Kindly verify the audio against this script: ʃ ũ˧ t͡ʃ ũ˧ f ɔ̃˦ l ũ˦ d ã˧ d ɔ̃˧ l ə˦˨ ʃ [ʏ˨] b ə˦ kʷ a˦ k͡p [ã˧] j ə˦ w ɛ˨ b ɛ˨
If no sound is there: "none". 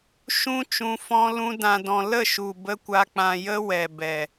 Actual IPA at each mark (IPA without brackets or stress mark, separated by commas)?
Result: u˨, ã˧